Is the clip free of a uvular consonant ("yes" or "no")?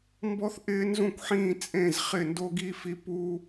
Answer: no